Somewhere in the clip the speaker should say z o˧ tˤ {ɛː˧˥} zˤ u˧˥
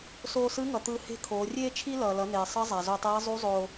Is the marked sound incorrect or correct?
correct